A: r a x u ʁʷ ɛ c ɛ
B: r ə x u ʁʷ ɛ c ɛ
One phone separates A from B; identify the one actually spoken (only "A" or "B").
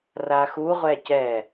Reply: A